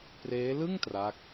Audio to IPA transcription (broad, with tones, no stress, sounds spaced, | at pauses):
p r eː˦˥ l ɯ˥˩ ŋ t r a˦˥ k̚